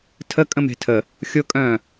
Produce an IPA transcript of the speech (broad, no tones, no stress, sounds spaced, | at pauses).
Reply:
tʰ ə kʼ ə̃ m e̤ tʰ ə | xʲ ʊ kʼ œ̃ː